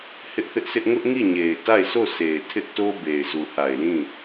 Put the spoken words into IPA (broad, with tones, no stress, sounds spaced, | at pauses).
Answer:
h ɪ˦ ʔ θ ɪ˦ ʔ sʰ ɪ˦ ʔ ŋ ʊ˦ ʔ ŋ i˦˨ ɲ e˨ ɪ̯ t a˦˨ ɪ̯ sʰ o˦˨ s e˨ ɪ̯ tʰ ɪ˦ ʔ t o˦ b e˨ ɪ̯ z u˨ h a˨ ɪ̯ l ĩ˦˨